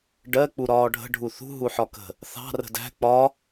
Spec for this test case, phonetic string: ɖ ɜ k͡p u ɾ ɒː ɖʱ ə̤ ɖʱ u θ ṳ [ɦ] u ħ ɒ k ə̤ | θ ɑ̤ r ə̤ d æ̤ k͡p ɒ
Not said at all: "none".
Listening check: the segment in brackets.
ɦ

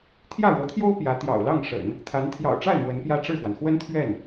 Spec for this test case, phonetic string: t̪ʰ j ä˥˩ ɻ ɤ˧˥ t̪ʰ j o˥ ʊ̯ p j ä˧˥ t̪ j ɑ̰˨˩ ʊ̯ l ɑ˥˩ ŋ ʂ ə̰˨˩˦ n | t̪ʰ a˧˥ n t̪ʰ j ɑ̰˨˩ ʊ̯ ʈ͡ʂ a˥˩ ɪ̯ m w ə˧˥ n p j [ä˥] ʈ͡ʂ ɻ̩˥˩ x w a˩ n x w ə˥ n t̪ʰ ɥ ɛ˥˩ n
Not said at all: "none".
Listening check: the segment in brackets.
ä˥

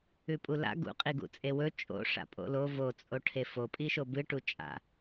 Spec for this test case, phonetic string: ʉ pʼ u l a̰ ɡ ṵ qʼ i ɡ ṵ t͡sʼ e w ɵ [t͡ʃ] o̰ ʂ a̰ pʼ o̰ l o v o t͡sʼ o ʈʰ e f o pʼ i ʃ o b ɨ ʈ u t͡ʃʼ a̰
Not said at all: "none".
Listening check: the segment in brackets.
t͡ʃʼ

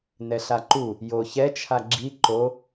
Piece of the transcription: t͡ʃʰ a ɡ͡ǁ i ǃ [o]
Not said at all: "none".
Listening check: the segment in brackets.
o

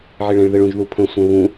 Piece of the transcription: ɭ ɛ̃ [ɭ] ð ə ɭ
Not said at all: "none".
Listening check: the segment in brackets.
ɭ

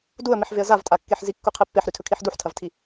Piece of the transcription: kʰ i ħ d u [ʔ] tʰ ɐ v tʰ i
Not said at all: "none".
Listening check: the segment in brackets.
ħ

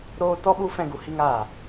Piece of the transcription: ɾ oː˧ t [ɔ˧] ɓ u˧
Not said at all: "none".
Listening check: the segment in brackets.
ɔ˧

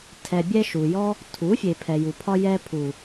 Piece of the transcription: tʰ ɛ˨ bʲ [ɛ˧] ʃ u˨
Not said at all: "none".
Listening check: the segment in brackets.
ɛ˧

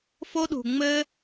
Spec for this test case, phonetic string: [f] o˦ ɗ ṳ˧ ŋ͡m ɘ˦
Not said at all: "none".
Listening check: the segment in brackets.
f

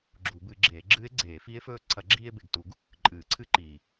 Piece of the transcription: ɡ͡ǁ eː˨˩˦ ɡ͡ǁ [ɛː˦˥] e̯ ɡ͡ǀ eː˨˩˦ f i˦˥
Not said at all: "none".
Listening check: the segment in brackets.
ɨː˦˥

